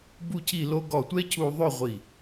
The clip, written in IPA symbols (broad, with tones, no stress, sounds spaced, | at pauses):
b u˥˧ cʰ i˥˧ l o˥ ɡ ɔ˧˩ tʷ ɛ˥ cʰ u˧ ðˤ ø˥˧ ʁʷ i˧˩